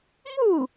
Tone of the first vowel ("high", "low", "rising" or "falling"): falling